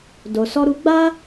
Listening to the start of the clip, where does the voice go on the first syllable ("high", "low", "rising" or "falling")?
low